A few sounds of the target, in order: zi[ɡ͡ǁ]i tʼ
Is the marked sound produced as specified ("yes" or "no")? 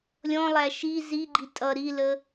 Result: no